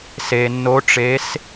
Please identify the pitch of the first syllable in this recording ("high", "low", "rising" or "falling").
low